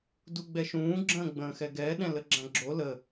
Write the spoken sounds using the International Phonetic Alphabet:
d u ɡ͡b ɛ ʃ ũː ɡ͡ǁ ə̃ː ɡ͡b ə̃ː x ɛ ɡ ɛː ɗ ɛ̃ l ə ɡ͡ǁ ã ɡ͡ǁ o l ə

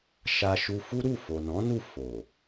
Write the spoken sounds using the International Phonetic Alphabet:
ʃ a˧ ʃ u˧ f u˦ ɾ u˦˨ f o˨ n ɔ̃˨˦ n u˦˨ f o˨

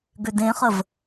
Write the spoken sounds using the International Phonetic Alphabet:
ɡ ø d ẽ χ ə v

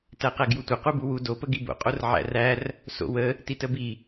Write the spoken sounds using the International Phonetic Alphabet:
t æ q æ ɡ j u tʷ ə q u b u w u d o p ə ɡ i b o̰ qʼ o r ʕ æ̰ r æ r | s o̰ w ə | t i t ə b i

